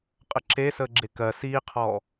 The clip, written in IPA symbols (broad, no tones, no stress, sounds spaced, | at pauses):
qʼ ə ǁ e s əː ɡ͡ǁ e k ɜ s iː qʰ ɔː